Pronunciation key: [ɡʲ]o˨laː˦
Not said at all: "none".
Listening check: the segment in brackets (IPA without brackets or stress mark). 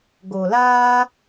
ɡ